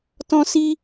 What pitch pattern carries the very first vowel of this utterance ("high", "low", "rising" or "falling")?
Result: high